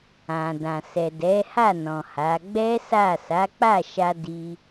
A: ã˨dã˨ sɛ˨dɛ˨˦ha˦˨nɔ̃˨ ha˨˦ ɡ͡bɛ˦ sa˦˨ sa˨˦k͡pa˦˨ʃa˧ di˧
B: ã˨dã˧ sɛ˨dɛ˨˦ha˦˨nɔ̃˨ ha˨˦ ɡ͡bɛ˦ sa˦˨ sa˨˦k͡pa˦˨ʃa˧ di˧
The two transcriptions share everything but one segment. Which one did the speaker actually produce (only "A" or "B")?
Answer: A